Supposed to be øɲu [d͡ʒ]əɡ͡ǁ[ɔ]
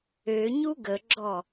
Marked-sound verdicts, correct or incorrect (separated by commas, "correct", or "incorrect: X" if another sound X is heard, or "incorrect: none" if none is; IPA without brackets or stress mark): incorrect: ɡ, correct